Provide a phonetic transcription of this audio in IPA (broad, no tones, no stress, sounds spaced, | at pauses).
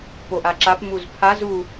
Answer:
p o ʔ a ǁ a p m u z pʰ a z u